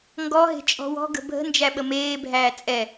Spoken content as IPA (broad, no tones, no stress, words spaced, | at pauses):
ŋɡɔɦe̤ t͡ʃʼɔ̤wɔ̤ ɡə̤bʱə̤ nd͡ʒæɓəmeːbʱæː t͡sʼɛ